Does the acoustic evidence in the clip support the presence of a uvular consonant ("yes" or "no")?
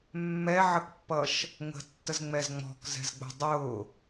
no